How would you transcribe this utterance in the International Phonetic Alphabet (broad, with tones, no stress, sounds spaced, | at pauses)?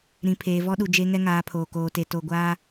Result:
ɾ ĩ˨ pʰ eː˨ v ɔ˦ ɗ u˨ d͡ʒ e˦ ŋ ɛ˦ ŋ aː˨˦ pʰ oː˨ k oː˨ t e˨ t o˨ ɡʷ aː˦